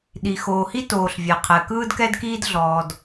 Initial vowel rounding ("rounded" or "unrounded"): unrounded